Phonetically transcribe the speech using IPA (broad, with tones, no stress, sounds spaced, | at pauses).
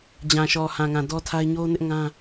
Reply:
d͡ʑ ã˨ ʃ ɔ˨ h ã˨ ŋ ã˨ d ɔ˦ tʰ a˦ ɪ̯ ɲ o˦ n ɪ˦ ʔ ŋ ã˦